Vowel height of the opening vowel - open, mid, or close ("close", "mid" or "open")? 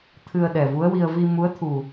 close